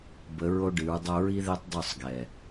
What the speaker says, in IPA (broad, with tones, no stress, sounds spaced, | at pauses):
b ə˨˦ ɹ o˦ ɖ ɨ˨˦ ɹ dˤ o˦ ɹ i˦ ð e˦ tˤ dˤ o˦˨ sˤ ɡ ɛ˨